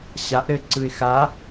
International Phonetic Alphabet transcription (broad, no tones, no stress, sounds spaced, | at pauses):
ɕ a ʔ ɾ ɘ ǀ ɯ ɪ̯ x a